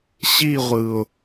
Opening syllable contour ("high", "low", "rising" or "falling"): falling